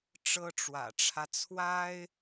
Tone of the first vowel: high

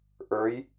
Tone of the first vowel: rising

